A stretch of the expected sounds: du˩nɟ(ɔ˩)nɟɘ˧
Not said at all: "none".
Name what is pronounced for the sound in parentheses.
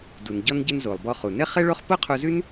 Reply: ɔ˧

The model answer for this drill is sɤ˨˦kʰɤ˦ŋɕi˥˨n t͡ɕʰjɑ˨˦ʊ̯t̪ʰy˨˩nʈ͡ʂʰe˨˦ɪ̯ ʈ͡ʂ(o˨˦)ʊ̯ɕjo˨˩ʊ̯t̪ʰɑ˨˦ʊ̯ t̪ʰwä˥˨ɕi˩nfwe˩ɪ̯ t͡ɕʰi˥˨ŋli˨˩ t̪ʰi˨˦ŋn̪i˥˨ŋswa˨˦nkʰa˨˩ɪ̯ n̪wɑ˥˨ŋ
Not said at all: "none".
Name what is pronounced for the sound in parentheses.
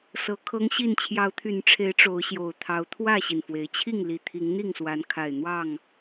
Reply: o˨˦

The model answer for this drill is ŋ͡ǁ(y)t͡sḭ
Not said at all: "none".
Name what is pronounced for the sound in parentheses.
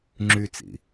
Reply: y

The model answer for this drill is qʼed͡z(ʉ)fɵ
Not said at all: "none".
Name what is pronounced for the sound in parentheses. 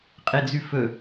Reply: ʉ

